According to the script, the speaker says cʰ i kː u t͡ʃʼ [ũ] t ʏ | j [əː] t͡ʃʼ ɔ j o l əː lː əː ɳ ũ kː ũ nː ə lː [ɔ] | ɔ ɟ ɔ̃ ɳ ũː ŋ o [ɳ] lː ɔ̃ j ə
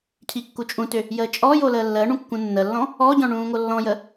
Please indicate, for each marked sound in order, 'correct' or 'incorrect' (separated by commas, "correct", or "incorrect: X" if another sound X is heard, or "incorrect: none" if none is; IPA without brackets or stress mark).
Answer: correct, correct, incorrect: ɔ̃, incorrect: none